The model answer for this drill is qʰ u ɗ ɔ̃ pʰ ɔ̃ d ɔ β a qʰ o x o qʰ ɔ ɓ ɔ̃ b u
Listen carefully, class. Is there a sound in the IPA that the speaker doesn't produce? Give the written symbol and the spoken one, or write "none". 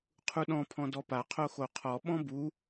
β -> p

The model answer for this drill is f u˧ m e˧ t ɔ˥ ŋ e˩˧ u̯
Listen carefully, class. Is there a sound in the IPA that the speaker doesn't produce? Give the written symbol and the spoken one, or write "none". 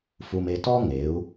none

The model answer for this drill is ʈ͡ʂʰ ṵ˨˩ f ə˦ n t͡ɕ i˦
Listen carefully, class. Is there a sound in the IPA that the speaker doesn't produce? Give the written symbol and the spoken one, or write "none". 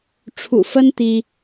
t͡ɕ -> t̪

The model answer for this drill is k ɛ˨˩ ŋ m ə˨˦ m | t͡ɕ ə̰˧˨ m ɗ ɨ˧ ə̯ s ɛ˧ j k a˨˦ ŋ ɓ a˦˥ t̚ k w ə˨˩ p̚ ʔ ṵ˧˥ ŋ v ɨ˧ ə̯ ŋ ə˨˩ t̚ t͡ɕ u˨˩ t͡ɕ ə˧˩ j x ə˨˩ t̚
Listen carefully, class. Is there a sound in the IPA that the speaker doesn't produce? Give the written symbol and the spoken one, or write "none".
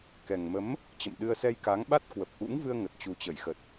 none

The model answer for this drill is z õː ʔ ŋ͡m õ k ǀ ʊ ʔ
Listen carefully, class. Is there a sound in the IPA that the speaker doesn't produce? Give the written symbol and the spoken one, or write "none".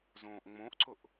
k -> ʔ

